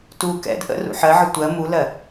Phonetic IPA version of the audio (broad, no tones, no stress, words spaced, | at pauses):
tu kɛ̰d ʔə̰ rṵħɜʕə tʷɜ mulɜ